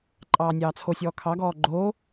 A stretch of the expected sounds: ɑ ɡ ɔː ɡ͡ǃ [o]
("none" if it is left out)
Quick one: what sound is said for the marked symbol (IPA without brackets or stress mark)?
oː